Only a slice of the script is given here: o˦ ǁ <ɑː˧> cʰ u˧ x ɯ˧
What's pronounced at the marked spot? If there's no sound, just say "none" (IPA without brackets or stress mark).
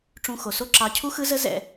ɑ˧